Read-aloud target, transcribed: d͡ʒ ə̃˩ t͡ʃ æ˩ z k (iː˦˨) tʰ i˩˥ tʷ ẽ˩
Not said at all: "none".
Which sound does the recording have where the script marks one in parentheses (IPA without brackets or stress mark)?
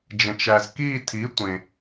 iː˦˨